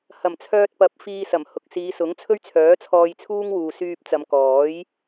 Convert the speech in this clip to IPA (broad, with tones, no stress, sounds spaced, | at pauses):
h ɐ˨˩ m t͡sʰ œː˧ t̚ p ɐ˨˥ p̚ f iː˧ s ɐ˨˩ m h ʊ˨ k̚ s iː˨˧ s ʊ˨˥ ŋ t͡sʰ ɵ˥ ɥ t͡sʰ œː˨˥ t͡sʰ ɔː˧ j t͡sʰ uː˥ ŋ w uː˨ s yː˧ p̚ t͡s ɐ˨˧ m k ɔː˨˥ j